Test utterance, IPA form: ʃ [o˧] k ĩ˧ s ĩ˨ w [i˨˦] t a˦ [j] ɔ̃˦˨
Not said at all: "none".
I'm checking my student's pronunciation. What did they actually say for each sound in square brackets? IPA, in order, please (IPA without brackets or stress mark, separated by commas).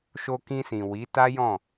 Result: o˧, i˨˦, j